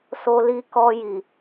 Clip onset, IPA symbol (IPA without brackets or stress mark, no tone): s